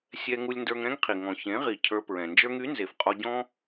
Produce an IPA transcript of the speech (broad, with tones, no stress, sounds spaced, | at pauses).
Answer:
sʲ ɛ˧ ŋ u˧ lʲ n d ə˞˧ ŋ ɾ ɛ̃˦ ŋ qʰ i˨ ŋ ɔ̃˨ ç ẽ˨˦ ʁ i˨ cʰ ə˞˧ p ɹ ɛ̃˨ n d͡ʒ ə˞˦ ŋ y˨˦ n z e˨ f qʼ ɔ˧ ɟ ɔ̃˦